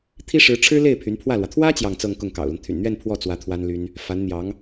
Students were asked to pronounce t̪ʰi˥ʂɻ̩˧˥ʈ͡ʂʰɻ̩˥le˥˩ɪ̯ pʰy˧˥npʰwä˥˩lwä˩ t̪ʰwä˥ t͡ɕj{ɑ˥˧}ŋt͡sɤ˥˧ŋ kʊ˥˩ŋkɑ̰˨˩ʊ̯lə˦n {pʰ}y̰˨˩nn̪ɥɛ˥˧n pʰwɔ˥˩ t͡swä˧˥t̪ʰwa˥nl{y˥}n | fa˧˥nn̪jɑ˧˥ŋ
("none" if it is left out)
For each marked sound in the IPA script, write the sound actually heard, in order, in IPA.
ɑ˥˧, t̪ʰ, y˥

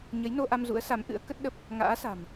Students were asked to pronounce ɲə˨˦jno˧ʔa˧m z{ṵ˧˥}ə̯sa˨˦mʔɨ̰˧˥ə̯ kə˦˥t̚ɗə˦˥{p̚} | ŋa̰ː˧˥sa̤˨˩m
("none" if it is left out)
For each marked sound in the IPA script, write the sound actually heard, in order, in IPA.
ṵ˧˥, p̚

